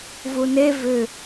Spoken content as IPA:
vune vʏ

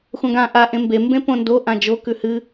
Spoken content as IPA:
xʷãɡã ʔa ʔẽmbe mbẽpõndo ʔãd͡ʒo kʉhɨ

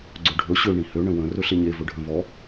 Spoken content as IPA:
ɡ͡ǀɵɖʱɵ ɕø ɳĩhø ɳə̃wə̃ rɵɬeɲe vɵɖʱə̃vɔ

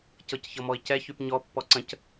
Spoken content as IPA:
cɤcçɤmɔi̯cɛ çypɲɔ pːɔǀə̃c

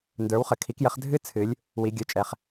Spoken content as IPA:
ndə˞˨˥wχə˩˧kʰi˨˥kjə˨˥χ dʱɨ˥ t͡sʰɨ˩˧lʲ | wi˩˧ɡʲə˞˩˧t͡ʃʼɛ˩˧χ

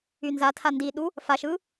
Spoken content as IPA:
ynzatʰa ndiɗu | faʃɯ

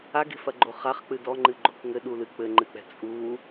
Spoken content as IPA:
aɡe̤fɐɡ͡ǃo χaχk͡pɨ dɔŋ͡ǃɨɡ͡ǃok ŋɘɗulɨ k͡pɘŋ͡ǃɨk͡pɛ̤ t͡sʼu

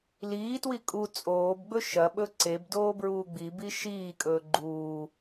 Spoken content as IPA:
liːtwi kʼu t͡sʼoːbɡ͡bɵ ʃɐɓɵ ǀebdoː bɹuːɡ͡bibi ʃiːkʼɵː ɡ͡ǃuː

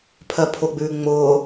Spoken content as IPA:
pʰɜpʰʊɡ͡bʉː ŋ͡mʊː

